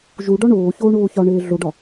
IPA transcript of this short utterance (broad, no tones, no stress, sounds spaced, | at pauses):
ʒ u ɖ ɒ ɳ oː ç oː ɳ oː ç ɒ ɳ eː ɮ o ɖ ɒ